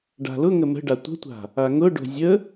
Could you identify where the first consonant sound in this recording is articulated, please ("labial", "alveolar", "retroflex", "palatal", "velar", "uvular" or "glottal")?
retroflex